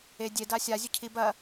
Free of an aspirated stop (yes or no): no